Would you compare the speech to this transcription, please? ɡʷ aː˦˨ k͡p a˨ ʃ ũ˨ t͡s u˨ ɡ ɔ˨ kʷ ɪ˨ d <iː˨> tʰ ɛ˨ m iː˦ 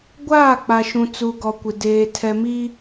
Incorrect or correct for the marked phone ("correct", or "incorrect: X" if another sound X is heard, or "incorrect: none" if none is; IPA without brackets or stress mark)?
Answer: incorrect: eː˨